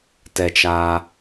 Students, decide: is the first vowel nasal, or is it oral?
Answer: oral